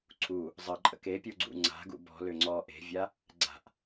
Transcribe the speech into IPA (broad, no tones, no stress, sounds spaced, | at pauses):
ǀʰ u | zˤ ə ǃʼ ə̰ k e pʲ u ɡ͡ǀ ṵ ŋ͡ǀ a̤ ɡ ṵ b ɔ̤ l ʏ ŋ͡ǀ ɔ ʔ e̤ vʲ a | ɡ͡ǀ a̤ ʔ